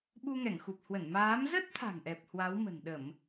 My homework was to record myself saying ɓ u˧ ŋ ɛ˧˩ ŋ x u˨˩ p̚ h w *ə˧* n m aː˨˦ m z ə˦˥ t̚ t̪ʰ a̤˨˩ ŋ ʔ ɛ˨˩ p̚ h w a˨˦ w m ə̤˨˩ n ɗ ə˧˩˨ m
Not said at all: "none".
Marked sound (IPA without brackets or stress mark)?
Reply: ə˧˩